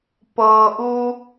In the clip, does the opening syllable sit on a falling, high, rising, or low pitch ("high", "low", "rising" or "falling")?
low